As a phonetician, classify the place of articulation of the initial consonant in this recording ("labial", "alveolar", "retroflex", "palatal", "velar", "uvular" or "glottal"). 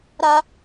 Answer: alveolar